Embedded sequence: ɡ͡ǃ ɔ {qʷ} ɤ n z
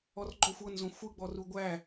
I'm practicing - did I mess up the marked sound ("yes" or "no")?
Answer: yes